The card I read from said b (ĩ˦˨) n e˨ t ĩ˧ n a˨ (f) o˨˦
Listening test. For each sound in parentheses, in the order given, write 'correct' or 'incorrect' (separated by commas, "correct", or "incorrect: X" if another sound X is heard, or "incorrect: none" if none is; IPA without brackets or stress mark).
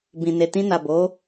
incorrect: ĩ˨, incorrect: b